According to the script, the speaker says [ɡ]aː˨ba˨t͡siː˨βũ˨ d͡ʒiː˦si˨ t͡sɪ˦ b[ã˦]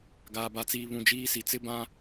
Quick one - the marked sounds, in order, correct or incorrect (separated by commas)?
correct, correct